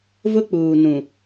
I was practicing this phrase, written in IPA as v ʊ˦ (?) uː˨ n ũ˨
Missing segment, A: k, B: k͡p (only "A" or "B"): B